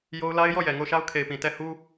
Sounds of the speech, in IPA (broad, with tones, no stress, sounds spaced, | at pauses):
j o˦ ʊ̯ l a˦ ɪ̯ j ɔ˦˨ j ɛ˨ ŋ o˦˨ ʊ̯ ʃ a˦ ʊ̯ kʰ e˨ ɪ̯ p ĩ˨ t ɛ˦˨ h u˦